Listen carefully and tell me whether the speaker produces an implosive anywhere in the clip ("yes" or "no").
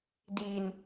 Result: no